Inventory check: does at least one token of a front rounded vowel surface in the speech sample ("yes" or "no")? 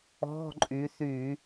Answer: yes